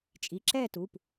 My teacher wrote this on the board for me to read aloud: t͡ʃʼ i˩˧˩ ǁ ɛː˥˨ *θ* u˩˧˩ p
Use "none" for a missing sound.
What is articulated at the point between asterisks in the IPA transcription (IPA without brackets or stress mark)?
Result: t